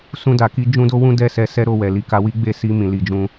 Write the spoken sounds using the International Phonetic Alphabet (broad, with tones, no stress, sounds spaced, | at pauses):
s ũ˧ d a˨ k i˧ d͡ʒ ũ˦ d o˦ w ũ˦ d ɛ˦˨ s ɛ˧ s ɛ˦ ɾ o˧ w ɛ˨ l i˨ k a˧ w i˦ ɡ͡b e˦˨ s i˧ m ĩ˨ l i˧ d͡ʒ ũ˦